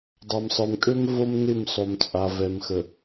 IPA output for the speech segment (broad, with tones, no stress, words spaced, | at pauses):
dˤa˨msˤə˞˨mkʼø˦m vo˦mnɪ˦˨msˤo˨m t͡sʼa˨vɛ˨mxə˨